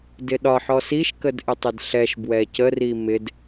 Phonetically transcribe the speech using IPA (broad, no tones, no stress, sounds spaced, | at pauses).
d ɪ ɗ ɒ ħ ɔ s i ʃ k ə d ʔ ɪ tˤ ɪ d ɬ ɛ ʃ b w ɛ c ə r i m ɪ d